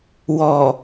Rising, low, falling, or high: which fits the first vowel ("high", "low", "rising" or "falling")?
low